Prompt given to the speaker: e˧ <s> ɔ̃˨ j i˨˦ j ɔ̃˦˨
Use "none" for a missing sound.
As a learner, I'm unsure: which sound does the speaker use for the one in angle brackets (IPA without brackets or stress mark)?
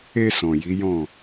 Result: s